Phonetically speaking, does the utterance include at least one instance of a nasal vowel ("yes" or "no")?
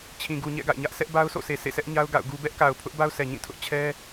yes